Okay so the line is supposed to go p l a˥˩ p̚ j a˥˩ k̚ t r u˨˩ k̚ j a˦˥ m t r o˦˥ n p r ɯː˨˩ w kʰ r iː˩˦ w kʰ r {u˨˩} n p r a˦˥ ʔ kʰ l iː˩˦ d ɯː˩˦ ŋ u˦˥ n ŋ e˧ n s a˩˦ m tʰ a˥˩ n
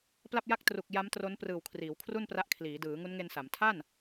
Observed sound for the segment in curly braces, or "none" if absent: u˥˩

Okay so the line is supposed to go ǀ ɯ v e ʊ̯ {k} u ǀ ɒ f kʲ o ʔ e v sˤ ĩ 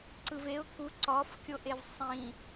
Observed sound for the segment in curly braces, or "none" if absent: k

